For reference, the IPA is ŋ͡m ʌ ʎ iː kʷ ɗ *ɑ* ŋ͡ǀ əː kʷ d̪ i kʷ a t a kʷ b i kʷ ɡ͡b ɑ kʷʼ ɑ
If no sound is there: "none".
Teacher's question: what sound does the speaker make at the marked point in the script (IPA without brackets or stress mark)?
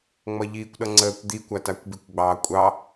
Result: ʌ